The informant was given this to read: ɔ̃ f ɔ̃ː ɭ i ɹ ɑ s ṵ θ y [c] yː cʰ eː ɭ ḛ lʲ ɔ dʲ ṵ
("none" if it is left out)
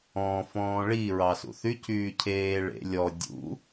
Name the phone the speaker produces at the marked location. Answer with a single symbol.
c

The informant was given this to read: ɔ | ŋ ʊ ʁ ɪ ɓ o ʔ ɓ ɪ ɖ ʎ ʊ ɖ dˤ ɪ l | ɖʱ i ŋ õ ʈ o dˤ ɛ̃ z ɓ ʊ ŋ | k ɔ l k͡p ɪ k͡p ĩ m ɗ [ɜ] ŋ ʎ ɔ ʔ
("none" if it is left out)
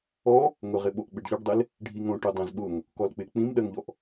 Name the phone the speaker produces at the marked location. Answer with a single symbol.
ɜ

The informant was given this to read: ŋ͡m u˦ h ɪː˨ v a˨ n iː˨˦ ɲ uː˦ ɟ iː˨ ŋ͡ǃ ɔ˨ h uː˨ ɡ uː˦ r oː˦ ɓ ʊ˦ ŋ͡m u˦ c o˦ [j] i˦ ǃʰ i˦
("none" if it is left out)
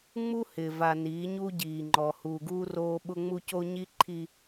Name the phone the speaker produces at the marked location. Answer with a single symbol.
ɲ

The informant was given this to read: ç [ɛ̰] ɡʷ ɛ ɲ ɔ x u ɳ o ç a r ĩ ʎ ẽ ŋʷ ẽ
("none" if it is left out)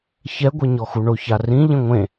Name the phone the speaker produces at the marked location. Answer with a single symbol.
ɛ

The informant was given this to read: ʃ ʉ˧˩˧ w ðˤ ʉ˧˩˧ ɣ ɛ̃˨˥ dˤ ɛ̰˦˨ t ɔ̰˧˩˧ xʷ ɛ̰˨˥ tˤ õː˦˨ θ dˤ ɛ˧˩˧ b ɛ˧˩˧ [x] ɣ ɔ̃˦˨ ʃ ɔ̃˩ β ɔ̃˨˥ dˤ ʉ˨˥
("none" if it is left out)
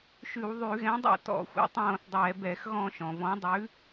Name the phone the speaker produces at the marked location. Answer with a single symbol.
x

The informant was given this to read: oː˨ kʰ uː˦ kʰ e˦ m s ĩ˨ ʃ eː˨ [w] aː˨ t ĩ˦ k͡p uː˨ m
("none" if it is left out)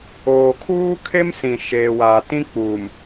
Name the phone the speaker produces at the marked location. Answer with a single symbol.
w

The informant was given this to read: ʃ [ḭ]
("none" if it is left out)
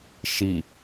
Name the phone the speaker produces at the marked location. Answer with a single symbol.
i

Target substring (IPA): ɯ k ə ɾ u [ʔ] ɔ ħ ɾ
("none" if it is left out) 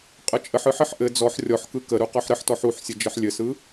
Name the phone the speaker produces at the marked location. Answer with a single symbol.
q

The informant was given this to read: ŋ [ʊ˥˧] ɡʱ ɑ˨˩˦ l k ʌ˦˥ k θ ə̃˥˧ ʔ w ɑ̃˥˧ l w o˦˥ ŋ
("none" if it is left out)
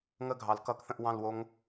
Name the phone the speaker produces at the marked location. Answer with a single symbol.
ə˥˧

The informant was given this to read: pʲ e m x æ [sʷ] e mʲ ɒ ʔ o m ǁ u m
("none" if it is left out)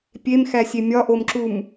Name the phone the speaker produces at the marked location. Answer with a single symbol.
sʲ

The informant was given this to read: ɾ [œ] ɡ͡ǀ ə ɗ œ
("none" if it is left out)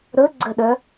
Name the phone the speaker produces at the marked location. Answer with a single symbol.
ɵ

